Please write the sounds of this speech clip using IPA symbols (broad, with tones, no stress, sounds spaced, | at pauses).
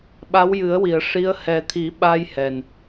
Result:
ɓ a˧˥ w j ɨ˨˩˦ ə̯ w i˨˩˨ ə̯ ʂ i˧˥ ə̯ h ɛ˨˩˦ t̪ʰ i˨˩˦ ɓ a˧ j h ɛ˨˩ n